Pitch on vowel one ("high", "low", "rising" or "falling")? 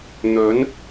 rising